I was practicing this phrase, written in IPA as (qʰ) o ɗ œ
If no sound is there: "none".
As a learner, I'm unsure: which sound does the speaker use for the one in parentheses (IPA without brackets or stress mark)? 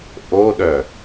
ʔ